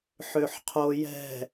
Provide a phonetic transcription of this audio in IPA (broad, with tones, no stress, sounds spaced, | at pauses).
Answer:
ħ ø˨ ħ qʰ o˨ j ɛ̤˨